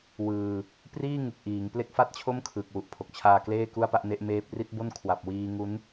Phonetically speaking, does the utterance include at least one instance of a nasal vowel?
no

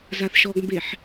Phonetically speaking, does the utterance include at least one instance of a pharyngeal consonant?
yes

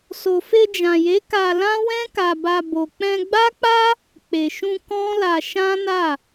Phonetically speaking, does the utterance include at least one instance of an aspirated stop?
no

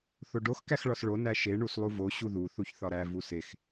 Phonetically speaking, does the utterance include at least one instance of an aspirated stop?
no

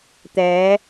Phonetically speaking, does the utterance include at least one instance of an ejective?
no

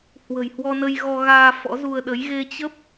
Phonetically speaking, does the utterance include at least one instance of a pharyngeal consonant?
no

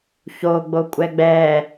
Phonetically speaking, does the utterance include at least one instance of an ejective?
yes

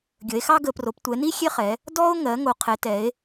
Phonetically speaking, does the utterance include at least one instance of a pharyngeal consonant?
no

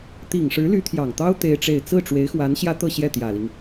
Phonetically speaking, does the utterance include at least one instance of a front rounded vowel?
yes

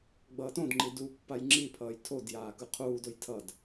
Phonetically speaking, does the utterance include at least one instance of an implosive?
no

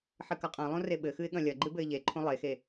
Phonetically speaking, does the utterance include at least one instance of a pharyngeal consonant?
yes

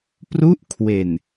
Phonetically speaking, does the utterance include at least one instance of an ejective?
no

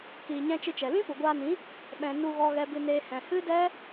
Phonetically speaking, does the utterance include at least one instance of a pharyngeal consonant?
no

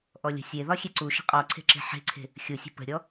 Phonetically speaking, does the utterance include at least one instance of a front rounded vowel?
no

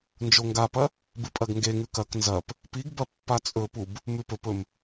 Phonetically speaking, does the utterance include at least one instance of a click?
no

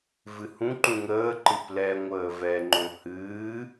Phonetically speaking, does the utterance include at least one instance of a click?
yes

